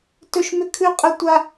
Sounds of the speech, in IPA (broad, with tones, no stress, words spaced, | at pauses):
tɵ˥ʃmʏ˥ kʰʉ˥qʼə˥tʷa˥